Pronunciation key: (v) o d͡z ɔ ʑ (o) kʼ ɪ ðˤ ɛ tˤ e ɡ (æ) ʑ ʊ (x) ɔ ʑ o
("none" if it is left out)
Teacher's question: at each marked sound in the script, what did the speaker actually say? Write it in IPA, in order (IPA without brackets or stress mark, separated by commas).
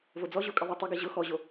v, o, ɛ, x